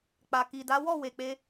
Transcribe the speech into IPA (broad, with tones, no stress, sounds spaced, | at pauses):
k͡p a˨ k i˨ d a˨˦ w ɔ˦˨ w e˨ k͡p e˧